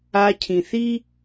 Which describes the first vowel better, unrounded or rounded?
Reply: unrounded